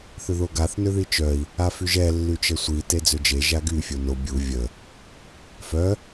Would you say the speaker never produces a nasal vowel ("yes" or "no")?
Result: yes